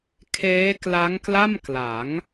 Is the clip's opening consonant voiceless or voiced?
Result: voiceless